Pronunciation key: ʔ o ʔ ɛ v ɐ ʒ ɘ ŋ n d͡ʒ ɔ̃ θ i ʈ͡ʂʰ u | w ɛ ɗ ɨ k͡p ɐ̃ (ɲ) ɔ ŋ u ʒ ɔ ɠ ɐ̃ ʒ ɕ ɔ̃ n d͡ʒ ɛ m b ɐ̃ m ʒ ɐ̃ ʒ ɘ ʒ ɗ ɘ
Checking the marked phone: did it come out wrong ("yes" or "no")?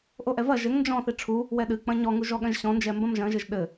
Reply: no